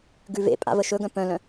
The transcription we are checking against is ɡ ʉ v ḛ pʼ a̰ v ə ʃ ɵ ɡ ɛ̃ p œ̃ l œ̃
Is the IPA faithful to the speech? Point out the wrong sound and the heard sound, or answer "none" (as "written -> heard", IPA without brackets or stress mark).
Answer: ɛ̃ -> œ̃